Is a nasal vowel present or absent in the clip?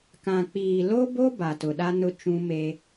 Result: present